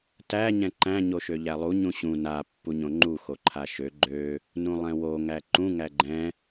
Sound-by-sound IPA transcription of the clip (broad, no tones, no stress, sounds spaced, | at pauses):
t æ ɲ ɛ̃ ǃ æ̃ ɲ o ʃ ø ʎ æ lˠ u ɲ ũ ɕ ũ n a pː u ɲ õ ŋ͡ǃ u x o ǃʰ a ʃ ø ɡ͡ǃ ø | n ũ lˠ ɛ̃ w o ŋ æ ǃ ũ ŋ æ ɡ͡ǃ ɛ̃